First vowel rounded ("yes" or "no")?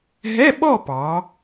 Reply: no